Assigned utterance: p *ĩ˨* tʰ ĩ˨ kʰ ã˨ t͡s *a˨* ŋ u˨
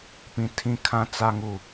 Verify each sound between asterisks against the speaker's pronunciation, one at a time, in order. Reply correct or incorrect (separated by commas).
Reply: correct, correct